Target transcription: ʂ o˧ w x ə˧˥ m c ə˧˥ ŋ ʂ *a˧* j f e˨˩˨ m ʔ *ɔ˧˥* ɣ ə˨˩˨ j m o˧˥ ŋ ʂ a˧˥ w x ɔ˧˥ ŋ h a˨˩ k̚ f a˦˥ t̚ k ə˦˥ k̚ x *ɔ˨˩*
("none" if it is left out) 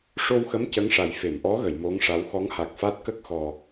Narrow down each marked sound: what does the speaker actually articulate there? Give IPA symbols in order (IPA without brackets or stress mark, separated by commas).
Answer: a˨˩, ɔ˧˥, ɔ˨˩